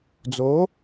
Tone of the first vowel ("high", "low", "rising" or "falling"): rising